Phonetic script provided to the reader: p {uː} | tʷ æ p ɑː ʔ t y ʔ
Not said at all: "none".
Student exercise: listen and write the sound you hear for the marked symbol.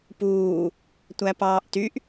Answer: uː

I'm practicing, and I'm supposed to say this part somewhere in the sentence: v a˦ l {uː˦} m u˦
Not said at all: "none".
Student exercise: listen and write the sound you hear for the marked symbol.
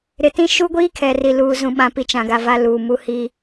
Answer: uː˨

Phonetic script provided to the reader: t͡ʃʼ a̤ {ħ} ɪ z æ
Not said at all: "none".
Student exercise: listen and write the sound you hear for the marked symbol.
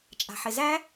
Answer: ħ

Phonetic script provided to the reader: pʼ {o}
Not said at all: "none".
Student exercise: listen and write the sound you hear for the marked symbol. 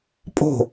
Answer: o̤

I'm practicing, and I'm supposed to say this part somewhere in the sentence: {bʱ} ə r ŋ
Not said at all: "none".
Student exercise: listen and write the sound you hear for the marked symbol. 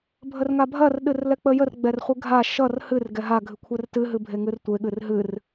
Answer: bʱ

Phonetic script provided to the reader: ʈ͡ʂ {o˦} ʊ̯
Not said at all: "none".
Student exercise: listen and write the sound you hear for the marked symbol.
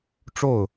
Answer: o˥˩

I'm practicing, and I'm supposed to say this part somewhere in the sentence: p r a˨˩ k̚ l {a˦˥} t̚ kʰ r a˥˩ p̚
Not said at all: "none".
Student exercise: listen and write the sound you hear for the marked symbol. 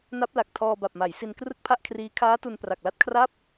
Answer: a˦˥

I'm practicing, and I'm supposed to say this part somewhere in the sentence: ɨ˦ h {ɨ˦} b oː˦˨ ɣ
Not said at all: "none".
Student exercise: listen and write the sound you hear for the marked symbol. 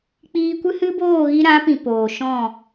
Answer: ɨ˦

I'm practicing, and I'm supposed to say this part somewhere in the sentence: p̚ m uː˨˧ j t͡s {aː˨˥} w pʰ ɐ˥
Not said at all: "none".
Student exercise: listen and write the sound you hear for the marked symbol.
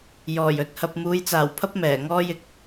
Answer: aː˨˩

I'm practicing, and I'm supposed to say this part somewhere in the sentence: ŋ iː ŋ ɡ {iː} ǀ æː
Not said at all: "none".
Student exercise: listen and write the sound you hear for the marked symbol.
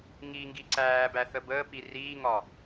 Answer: i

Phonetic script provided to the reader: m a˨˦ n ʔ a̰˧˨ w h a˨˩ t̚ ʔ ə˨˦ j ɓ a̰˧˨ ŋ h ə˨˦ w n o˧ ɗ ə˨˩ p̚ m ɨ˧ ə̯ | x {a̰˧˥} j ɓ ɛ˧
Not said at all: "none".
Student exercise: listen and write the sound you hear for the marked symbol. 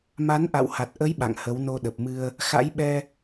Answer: a̰˧˥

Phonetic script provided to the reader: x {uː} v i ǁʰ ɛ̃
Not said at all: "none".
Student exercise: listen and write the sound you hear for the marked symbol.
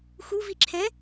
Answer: u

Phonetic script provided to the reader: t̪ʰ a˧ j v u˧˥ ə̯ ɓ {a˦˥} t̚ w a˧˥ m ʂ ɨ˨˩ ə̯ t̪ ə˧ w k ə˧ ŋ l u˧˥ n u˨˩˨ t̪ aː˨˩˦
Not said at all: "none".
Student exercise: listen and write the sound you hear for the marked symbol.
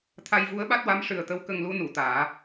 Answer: a˦˥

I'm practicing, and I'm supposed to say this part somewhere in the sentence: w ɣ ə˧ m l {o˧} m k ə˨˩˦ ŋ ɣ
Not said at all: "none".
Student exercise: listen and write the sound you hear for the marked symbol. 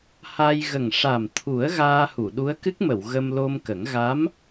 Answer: o˧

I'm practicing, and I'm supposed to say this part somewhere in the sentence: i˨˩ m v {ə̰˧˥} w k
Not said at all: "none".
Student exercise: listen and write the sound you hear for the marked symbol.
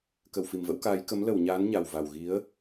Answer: ə̰˧˥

